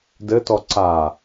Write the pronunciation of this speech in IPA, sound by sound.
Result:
d ɘ t ɔ ǀ a

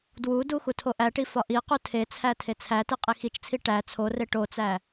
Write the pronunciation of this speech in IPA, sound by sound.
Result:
d w u d u x u tʰ o ʔ æ ʈ i f ɒ ʔ i q u tʰ e t͡sʰ æ tʰ e t͡sʰ æ t i qʼ i x i t͡ʃ t͡sʰ i ʈ æ t͡sʰ o r e ʈ o t͡s æ

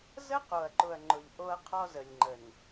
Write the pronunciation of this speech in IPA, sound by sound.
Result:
z ə˦ q o˨ ɐ̯ ǃ ʊ˨ ɐ̯ ŋ͡ǃ ʊ˨ ʎ ʔ o˦ ɐ̯ qʰ ɔ˦ z ə˨ lʲ ŋ͡ǃ ə˨ n

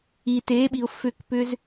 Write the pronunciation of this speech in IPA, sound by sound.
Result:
i˨ t e˨˦ ɓ i˨ ʊ̯ f ʏ˦˨ k p ʏ˦ z

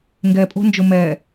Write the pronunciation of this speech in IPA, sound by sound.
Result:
ŋ ɡ ɛ pʼ o̤ n d͡ʒ o m ɛ

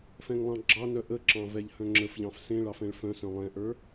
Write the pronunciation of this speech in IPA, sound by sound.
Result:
f ɛ̃ ŋ lˠ ɑ̃ ɡ͡ǁ ɑ n œ ʔ ə ǁ ɑ̃ v ɛ ʎ h œ̃ ŋ͡ǁ ə f ʎ ɑ̃ f s ẽ ɭ ɑ f ɛ̃ ɭ f œ̃ s œ̃ lˠ ɛ̃ ʔ ə˞

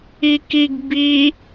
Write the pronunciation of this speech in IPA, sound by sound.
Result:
i k i ɡ b i

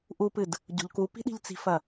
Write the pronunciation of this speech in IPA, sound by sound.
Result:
ʔ u p ɨ d | ɟ o̤ ʎ k u p i̤ ɗ i̤ ʎ t͡s i̤ f ɐ

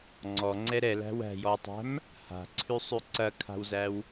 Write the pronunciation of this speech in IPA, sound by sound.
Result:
ŋ͡ǀ ɔ ŋ͡ǀ ɛ ɾ ɛ l æ̤ w æ̤ j ɔ w tˤ æ̤ m | h a̤ ǀʰ ʉ sˤ ʉ ǀ ɐ kʰ a̤ w z æ w

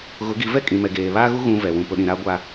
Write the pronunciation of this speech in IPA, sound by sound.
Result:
ɣ ʊ˨˦ ɡ i˨˦ v ɛ˦ kʼ ĩ˨ m ɛ˨ ɡ eː˨ β aː˦ ɣ u˦ ɣ ũ˦ v ɛ˨ w ũ˨ p ʊ˨ ɗ ĩ˨ ɾ a˦ ɡʷ a˦

